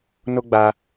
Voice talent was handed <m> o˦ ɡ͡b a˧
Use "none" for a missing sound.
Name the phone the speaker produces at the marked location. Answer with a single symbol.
n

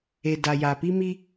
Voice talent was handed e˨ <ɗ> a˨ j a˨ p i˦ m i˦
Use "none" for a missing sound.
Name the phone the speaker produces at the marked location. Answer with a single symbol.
d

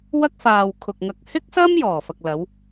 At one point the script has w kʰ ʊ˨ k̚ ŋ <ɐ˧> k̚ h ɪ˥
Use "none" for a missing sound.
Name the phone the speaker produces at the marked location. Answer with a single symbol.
ɐ˧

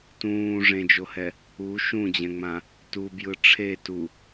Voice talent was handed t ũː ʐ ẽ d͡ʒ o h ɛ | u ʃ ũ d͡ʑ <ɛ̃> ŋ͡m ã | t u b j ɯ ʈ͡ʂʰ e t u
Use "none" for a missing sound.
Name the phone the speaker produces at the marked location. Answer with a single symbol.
ɛ̃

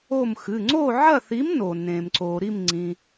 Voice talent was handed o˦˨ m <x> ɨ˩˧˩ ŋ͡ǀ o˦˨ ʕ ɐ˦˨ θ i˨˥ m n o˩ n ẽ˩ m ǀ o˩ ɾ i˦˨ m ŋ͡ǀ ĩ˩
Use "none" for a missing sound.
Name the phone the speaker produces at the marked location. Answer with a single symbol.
x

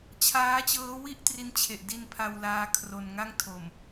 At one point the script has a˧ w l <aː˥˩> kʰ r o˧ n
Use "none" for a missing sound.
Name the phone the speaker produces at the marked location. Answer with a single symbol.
aː˧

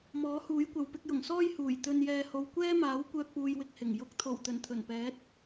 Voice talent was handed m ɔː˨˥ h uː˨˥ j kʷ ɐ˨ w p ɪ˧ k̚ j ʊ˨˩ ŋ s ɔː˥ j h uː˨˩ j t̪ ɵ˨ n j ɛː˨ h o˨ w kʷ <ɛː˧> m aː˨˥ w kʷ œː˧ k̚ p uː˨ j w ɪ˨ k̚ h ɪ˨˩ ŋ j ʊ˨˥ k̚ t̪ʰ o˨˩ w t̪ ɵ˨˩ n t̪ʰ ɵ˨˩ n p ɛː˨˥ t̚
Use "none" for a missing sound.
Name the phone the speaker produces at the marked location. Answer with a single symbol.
ɛː˥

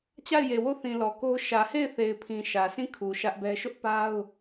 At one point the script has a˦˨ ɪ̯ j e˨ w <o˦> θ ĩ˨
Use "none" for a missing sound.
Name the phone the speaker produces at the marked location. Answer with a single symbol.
o˦˨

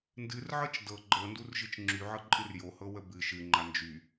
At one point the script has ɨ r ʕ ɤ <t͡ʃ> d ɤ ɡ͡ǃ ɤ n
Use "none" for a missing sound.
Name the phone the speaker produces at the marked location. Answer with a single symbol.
t͡ʃ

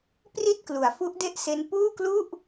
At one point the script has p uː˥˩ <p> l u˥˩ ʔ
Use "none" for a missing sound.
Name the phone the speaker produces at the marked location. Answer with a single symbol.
k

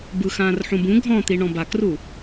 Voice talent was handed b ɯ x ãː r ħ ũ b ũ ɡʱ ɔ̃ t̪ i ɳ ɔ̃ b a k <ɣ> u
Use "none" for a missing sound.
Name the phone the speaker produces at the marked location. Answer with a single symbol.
r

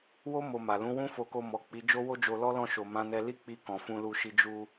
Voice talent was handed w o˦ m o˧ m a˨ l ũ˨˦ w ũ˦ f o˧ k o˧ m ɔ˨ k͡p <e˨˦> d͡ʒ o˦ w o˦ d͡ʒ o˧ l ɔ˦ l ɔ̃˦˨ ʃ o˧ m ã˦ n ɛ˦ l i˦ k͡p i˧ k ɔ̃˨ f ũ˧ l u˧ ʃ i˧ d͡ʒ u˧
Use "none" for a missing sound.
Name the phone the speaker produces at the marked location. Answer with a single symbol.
i˨˦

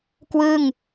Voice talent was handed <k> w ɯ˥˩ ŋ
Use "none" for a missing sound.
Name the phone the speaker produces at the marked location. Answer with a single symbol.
k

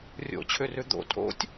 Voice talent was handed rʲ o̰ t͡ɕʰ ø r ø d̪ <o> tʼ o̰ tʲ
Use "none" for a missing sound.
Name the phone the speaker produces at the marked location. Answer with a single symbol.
o̰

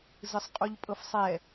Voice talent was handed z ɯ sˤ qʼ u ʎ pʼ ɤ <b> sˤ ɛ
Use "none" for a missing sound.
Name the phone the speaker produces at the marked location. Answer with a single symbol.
f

